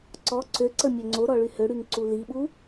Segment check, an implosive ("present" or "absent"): present